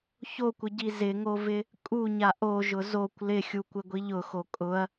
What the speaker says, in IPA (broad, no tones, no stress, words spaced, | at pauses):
çokʷɪɟi zɪŋovɪ | kʼuɲa ʔoʒʊ zokʷ lɪxʲukʷɪɡʷiʎ ʊxo kʼʊɐ̯